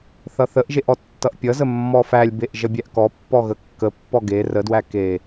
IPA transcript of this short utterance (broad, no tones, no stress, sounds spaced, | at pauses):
θ ʌ θ ə ʔ ʒ e ʔ ɔ tː ʌ ʔ pʲ ʌ z ə mː ɔ f æ lʲ b e ʔ ʒ ʌ bʲ æ ʔ k ɔ pː ɔ ɣ ə kː ə pː ɔ ɡ e r ə d w æ k e